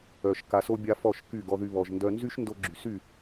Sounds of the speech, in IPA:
œ˨ ʃ k a˨ s o˧ bʲ a˧ f ɔ˦˨ ʃ k y˦˨ ɡ ɔ˧ ð y˧ β ɔ˨ ʒ n d œ˧ n z y˦ ʃ n d o˧ ɡ͡ǁ y˨ s y˦˨

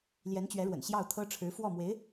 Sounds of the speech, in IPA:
l j ɛ˧˥ n t͡ɕ ɥ ɛ˧˥ ɻ w ə̰˨˩ n ɕ j ɑ˥˩ ʊ̯ t̪ʰ ɤ˥ ʈ͡ʂʰ ɻ̩˧˥ f w ɔ˥˩ m w e˧˥ ɪ̯

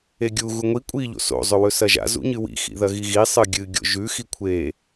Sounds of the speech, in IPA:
e ɡʲ u ɣ u ŋʷ i kʷʼ i ʎ o̰ s o̰ zˤ ɵ w ɵ s ɐ ʒ a̰ z ṵ ɲ ɨ w ḭ x ḭ ð ɐ ɣ i ɣ i sˤ ɨ ɡʲ ɨ ɡʲ o̰ ʒ ʉ x i kʷʰ e

